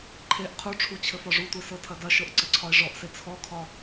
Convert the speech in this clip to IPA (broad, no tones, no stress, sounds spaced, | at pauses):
ǃʰ e ʔ qʰ u ʈ͡ʂʰ u t͡ɕʰ ɘ f ɒ ʐ u tʷ e s ɤ tʰ ɐ d ɐ ʃ ɤ ʔ ǀ ɘ ǀʰ ɒ e̯ ʐ ɔ ʔ s e t͡sʰ ɔ kʰ ɒ